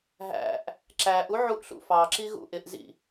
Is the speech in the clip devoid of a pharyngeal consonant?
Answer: no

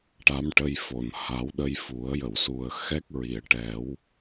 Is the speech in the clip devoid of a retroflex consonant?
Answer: no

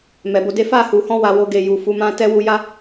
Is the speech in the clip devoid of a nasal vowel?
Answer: no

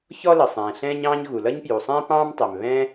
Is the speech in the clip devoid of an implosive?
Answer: yes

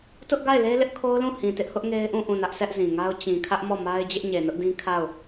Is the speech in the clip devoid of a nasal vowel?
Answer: no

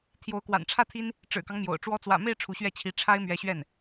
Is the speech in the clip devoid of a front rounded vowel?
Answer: yes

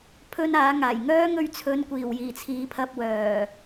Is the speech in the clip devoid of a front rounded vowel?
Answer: no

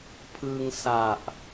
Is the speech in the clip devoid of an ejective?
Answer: yes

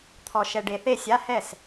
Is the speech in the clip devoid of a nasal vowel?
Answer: yes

